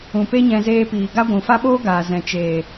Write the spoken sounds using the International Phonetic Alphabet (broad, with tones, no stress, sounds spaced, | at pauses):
ũ˨ p e˦ ɲ ɛ̃˧ z eː˧ p iː˨ ɡ a˦ ɡʷ ũ˨ f a˦ ɓ oː˦ ɡ aː˨ z ɛ̃˨ t͡ʃ eː˨